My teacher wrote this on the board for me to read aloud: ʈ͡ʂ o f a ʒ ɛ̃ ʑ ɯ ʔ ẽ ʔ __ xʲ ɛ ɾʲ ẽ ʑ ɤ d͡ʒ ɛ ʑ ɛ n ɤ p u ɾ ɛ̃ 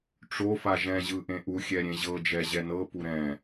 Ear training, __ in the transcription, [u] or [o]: u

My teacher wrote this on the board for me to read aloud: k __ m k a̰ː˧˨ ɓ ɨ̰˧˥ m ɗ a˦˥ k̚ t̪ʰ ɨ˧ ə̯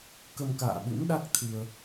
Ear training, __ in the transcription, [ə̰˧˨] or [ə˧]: ə˧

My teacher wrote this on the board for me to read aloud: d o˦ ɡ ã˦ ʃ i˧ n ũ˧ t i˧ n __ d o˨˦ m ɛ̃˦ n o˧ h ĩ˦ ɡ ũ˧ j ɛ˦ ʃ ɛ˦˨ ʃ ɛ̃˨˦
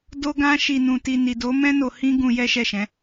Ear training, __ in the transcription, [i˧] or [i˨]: i˨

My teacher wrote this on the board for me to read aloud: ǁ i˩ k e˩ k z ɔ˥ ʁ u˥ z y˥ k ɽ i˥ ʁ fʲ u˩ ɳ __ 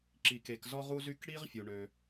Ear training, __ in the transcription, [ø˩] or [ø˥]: ø˩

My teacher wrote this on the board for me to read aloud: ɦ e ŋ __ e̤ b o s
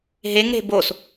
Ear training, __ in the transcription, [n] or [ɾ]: ɾ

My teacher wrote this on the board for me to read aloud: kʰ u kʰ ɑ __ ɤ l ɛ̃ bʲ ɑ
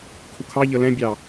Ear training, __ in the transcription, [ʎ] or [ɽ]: ʎ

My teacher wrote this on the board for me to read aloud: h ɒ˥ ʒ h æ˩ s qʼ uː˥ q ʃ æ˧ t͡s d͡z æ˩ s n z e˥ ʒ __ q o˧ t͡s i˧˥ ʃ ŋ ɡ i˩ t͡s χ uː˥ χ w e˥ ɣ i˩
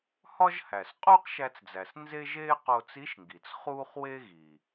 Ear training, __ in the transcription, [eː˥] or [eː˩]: eː˥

